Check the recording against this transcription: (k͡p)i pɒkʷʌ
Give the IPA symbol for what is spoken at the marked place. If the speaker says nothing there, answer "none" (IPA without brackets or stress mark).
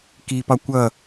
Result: k